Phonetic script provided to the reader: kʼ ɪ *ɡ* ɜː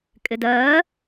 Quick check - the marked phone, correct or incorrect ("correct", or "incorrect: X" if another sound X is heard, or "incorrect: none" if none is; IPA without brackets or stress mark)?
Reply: incorrect: d